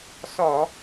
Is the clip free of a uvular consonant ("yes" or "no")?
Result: yes